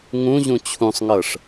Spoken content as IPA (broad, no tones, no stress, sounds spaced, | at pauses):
ŋ ũ ʑ ũ t͡ɕʰ ũ sˤ ŋ ɤ ʂ